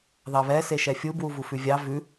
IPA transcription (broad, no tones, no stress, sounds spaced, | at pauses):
ð ɑ β ɛ s e ʃ ɛ fʲ u b w u v u f ʉ vʲ ɑ v ʉ